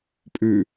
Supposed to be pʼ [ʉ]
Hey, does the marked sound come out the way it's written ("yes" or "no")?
yes